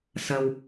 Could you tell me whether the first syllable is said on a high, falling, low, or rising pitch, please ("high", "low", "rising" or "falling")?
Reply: low